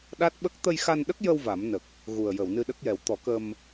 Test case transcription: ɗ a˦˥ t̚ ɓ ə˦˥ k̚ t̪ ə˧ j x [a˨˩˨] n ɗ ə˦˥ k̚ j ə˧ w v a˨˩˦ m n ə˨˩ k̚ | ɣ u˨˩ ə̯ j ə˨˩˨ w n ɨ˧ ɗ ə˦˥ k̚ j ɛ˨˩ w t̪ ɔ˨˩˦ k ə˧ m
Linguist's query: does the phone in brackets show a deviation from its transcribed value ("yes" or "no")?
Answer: yes